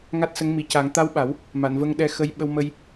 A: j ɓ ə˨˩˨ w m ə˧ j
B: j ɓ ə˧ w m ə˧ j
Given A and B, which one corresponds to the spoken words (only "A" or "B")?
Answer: B